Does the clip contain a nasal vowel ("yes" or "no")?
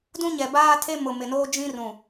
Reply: yes